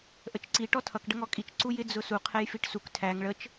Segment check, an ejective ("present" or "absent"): present